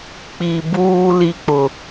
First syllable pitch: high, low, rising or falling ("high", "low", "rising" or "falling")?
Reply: low